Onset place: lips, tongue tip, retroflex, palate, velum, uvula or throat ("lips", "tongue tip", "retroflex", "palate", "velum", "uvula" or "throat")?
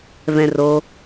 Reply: lips